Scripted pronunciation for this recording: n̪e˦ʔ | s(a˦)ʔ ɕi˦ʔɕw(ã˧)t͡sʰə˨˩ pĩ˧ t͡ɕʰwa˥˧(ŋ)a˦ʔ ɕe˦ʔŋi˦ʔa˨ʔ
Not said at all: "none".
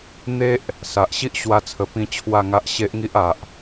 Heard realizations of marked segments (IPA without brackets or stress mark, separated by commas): a˨, a˧, ŋ